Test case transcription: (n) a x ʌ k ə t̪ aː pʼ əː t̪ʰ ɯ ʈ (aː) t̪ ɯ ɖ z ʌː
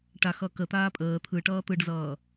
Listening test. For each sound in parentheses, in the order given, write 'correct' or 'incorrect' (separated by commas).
incorrect, incorrect